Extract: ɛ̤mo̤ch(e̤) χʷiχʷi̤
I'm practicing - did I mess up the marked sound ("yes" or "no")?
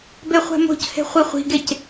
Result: no